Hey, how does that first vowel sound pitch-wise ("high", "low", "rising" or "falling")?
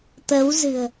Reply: rising